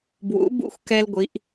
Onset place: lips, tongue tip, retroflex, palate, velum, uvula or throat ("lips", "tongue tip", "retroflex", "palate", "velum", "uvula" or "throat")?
lips